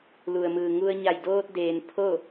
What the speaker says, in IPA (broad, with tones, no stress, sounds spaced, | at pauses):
l u˩ ə̯ m ɯː˩ ŋ u˧ ə̯ ɲ a˧˩ j d oː˧ t̚ d eː˩ n pʰ o˥˨